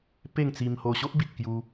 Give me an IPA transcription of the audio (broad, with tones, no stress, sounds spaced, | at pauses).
p e˥˧ ŋ t͡s i˧ m h o˧ ɕ o˦ ʔ b i˨ t̚ k j u˧